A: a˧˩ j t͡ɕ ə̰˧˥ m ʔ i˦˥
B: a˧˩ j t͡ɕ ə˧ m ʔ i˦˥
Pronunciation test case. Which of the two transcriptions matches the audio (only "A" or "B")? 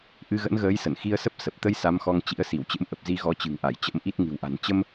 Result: A